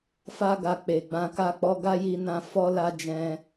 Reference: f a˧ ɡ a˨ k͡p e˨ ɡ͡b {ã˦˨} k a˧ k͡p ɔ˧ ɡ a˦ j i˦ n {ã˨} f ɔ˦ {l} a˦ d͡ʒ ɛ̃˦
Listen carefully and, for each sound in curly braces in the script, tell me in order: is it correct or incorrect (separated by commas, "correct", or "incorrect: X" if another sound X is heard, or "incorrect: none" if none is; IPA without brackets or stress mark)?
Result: incorrect: ã˧, incorrect: ã˦, correct